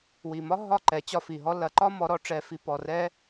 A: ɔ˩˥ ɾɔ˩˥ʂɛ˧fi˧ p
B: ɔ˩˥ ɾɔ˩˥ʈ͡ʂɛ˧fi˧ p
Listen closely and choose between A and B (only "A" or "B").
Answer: B